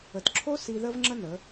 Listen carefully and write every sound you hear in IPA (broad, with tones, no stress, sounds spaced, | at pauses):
ə˨ t ǁʰ o˦ s i˧ ð ə˦ v ŋ͡ǁ ə˦ n ə˨˦